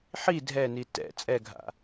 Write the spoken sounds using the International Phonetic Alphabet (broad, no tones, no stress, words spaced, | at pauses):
ħi dʱɛni tɛ̰ t͡sʼɛɡʱa̰